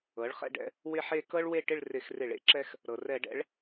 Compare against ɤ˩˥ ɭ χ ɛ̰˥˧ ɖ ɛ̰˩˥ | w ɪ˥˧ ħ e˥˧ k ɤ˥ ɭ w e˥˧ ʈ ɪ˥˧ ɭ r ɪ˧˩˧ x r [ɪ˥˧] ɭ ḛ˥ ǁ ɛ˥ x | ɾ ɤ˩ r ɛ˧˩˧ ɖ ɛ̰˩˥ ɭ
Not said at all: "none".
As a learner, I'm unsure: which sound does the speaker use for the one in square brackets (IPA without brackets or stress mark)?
ɪ˧˩˧